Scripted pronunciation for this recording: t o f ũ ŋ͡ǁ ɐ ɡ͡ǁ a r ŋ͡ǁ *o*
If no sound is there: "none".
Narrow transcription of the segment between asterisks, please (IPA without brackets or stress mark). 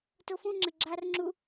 u